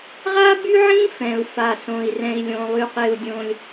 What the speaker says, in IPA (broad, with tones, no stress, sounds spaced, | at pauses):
ʁ a˥ b y˥ ʕ ĩ˥ f ɛ̃˩ u̯ f a˩ s õ˩ i̯ r ɛ̃˩ i̯ lʲ õ˩ lˠ y˩ q e˩ u̯ dʲ õ˩ lʲ